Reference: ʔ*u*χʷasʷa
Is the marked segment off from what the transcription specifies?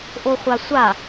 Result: yes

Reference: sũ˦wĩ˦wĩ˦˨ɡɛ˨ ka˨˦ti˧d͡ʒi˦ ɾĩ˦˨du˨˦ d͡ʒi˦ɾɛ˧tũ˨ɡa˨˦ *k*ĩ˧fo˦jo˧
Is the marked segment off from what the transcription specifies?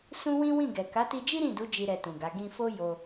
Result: yes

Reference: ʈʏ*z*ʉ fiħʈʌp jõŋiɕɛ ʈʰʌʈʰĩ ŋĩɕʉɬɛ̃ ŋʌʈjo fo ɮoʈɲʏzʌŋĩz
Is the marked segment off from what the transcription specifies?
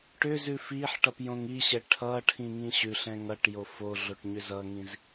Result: no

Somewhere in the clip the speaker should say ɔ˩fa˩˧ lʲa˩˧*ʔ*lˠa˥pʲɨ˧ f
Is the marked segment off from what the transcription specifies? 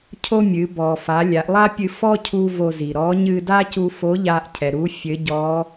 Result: no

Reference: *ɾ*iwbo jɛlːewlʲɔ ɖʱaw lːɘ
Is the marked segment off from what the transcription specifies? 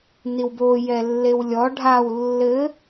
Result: yes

